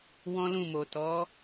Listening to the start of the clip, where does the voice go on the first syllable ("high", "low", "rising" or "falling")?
high